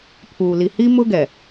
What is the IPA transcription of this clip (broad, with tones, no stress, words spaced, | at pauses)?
pʰuː˨li˨hi˦ mʊ˦ɡɛ˨